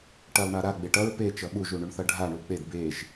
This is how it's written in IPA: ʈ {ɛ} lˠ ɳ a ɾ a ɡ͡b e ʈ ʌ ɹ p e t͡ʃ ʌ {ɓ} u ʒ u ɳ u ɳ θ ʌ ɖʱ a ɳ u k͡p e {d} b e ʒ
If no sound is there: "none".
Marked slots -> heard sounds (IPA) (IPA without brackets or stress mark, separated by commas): ɛ, ɓ, d